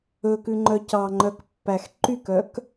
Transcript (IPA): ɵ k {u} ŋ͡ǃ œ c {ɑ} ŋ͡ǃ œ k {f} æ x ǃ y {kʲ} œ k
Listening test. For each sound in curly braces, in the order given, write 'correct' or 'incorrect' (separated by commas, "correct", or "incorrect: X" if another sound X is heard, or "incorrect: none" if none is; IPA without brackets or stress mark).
incorrect: ʉ, correct, incorrect: pː, incorrect: k